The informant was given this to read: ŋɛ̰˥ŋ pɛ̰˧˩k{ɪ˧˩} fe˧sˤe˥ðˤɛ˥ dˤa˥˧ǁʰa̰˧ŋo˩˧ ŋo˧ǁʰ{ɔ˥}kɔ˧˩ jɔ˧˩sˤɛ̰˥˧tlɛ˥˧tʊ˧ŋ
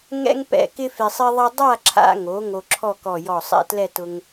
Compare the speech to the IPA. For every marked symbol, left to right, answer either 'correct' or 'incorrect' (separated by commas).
incorrect, incorrect